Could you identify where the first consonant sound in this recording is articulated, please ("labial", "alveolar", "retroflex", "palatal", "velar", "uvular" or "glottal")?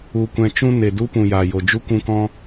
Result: velar